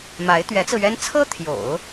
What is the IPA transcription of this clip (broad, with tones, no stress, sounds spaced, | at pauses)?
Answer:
m a˧˥ ɪ̯ t̪ ɥ ɛ˧˥ t͡s ɹ̩˧ ɥ ɛ˥ n t͡sʰ ɤ˥ t̪ʰ j o̰˨˩˦ ʊ̯